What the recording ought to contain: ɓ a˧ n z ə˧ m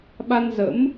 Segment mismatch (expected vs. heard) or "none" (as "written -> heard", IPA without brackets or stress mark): ə˧ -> ə̰˧˥